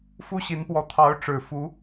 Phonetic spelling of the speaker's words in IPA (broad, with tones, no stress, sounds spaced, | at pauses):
f u˥ ɕ i˧˥ n p w ɔ˧˥ t̪ʰ ɑ˧˥ ʊ̯ ʈ͡ʂ ɻ̩˨˩ f u˧˥